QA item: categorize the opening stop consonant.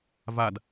plain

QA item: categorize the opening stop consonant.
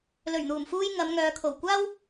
aspirated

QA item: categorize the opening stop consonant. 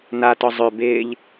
plain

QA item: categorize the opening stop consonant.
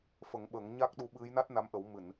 implosive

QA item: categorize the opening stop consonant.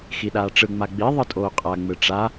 implosive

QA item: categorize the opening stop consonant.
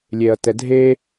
plain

